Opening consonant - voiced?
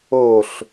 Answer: no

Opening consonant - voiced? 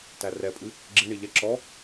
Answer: no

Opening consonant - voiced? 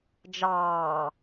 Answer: yes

